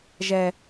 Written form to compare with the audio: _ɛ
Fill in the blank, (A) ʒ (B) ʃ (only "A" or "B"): A